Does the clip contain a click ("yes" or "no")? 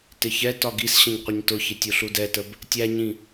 no